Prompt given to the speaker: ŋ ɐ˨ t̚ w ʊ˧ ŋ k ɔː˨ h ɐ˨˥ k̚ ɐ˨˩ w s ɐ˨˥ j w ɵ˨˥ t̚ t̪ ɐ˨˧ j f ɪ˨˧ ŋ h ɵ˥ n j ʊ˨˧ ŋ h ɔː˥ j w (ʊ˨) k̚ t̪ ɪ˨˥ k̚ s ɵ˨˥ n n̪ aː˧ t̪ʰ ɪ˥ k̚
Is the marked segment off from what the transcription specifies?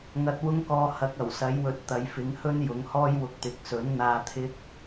yes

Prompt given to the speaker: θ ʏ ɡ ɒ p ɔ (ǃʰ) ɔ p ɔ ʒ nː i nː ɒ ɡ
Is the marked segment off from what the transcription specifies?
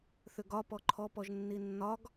no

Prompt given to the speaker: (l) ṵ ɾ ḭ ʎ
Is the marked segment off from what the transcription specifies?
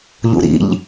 yes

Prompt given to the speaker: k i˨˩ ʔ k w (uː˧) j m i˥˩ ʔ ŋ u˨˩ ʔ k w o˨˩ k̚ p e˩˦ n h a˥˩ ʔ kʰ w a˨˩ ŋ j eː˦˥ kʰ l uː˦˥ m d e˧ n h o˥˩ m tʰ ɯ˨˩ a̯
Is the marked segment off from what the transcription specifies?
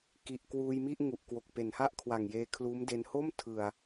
no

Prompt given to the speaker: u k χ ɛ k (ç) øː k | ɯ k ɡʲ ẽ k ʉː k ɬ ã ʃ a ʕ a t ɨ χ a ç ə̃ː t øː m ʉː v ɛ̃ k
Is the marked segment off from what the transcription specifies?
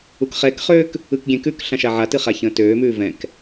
yes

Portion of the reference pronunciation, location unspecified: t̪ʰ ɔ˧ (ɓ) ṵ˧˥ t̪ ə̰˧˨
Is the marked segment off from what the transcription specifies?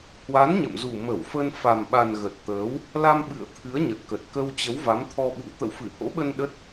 no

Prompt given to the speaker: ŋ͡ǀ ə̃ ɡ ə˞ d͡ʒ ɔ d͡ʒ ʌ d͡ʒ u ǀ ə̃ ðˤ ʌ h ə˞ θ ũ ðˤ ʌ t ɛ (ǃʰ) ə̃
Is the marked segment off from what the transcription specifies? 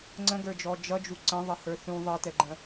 yes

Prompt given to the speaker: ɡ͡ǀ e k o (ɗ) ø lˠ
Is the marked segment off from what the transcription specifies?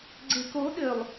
no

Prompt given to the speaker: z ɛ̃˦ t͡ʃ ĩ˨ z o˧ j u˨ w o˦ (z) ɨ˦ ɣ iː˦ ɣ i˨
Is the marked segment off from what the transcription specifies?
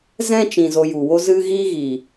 no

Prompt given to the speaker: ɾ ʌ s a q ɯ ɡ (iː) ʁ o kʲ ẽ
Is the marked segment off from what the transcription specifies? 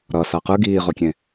no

